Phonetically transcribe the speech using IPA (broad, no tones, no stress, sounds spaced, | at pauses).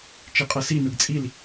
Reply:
t͡ʃ e qʼ ɤ s i n ɯ ɡ t͡sʼ i l